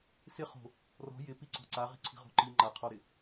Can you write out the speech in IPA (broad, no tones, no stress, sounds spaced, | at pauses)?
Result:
s ɪ χ o̤ | r ɔ̤ j ɪ p i ǀ ɔ̤ ǀ a ʁ i̤ ǀʰ i̤ ʁ o̤ ǃ i ŋ͡ǃ a qʰ ɔ ɾ ɪ